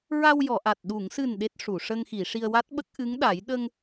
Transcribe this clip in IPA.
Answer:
ɹ a˧ w j ɔ˨˩˨ ʔ a˨˩ t̚ ɗ u˨˩˨ ŋ s ɨ˨˩ n ɗ e˦˥ t̚ ʂ u˨˩˨ ʂ ə˧ ŋ x i˨˩˨ ʂ i˧ ə̯ w a˦˥ t̚ ɓ ə˦˥ k̚ ʔ ɨ˧˥ ŋ ɗ a˨˩˦ j ɗ ə˧ ŋ

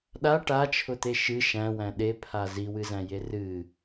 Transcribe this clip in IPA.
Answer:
ɗ a ʈ a t͡ʃʰ ʊ t̪ e ʃ ɨ ʃ æ̃ w æ̃ ɗ e pʰ a z i w ɨ z æ̃ j e r ɨ

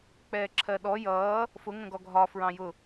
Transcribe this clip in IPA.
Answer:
k͡p ɛː ǁʰ ɜ ɗ ɔ j ʌː | f ʊ ŋ ə̃ ɡ ɔ ɡʱ ɒ f ɹ ɑ̃ j ʊ

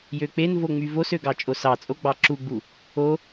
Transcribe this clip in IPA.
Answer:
j ø k͡p e n v o ŋ͡m y v o s ø ɡ ɑ t͡ʃʼ o s ɑ t͡sʼ o ɡ͡b ɑ ǁ u ɡ͡b u | o

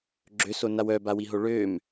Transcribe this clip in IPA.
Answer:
ɡ͡ǁ ø s o n a w œ b a w i ɦ o ɭ ø m

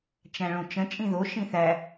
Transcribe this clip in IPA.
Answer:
t͡ʃ æ̃ ɭ õ t͡ʃ ə̃ t͡ʃʼ ĩ ð o ʃ ĩ θ æ

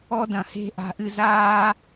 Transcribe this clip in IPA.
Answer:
ɔ˦ d ɐ̃˨ h e̤˦˨ ʔ a̤˨ ʔ ɨ˨ z aː˧

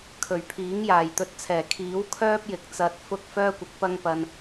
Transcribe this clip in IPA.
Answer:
kʰ ɵ˨˩ ɥ pʰ iː˨˥ ŋ j aː˨˩ j t̪ ɵ˨˥ t̚ t͡sʰ ɛː˨˩ kʰ iː˨˥ w kʰ œː˥ p̚ j ɪ˨ k̚ t͡s ɐ˨ t̚ f ʊ˧ k̚ f œː˥ kʷ ɪ˨˥ k̚ p ɐ˥ ŋ p ɐ˧ n

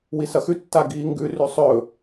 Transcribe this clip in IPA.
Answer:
w i s ɐ x ʉ tː a ɡ iː ŋ ɡ ʉ r ʉ sˤ ɵ

